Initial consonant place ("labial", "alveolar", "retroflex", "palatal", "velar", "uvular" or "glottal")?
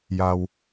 palatal